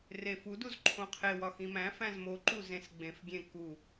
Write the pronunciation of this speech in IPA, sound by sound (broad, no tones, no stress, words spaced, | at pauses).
refuduz ǃʰõqʰewɒ xĩmæ̃fæ̃z moǃu zẽsɡ͡bẽfɡʲẽ ku